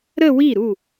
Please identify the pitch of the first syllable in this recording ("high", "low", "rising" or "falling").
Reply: falling